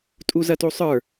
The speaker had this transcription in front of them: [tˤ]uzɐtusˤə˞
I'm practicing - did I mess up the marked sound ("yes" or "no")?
yes